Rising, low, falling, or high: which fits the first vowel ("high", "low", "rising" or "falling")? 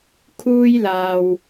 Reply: high